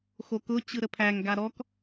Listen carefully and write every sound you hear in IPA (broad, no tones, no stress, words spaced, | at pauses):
xokʊ t͡ɕɯɾəpʰæŋ ɡaɾɔk